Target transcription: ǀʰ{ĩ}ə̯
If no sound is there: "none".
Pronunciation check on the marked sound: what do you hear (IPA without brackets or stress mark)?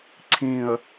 ĩ